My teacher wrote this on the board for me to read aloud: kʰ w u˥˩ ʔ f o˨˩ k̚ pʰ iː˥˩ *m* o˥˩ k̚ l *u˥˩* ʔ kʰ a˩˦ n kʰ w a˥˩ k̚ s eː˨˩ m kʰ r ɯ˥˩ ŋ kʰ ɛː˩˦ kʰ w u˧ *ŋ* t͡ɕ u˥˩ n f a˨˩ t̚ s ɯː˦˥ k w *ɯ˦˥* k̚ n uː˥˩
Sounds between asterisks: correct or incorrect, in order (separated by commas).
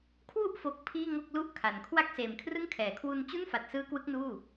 incorrect, correct, incorrect, correct